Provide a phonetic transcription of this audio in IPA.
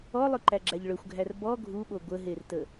ɔ lˠ ɵ ǃ æ ɡ͡ǁ æ ʎ ɭ ɵ xʷ ɡʱ æ r b ɔ ɡʱ u ɓ o ɡʷ ə ɦ e r t ə

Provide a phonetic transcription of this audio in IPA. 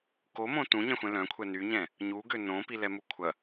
k o m õ t ũ ɲ ɛ̃ xʷ ɛ̃ l œ̃ kʷʰ ɛ n y ɲ ɛ̃ | ɲ u ɡ ø n õ p i l ɛ m u kʷʰ ɐ

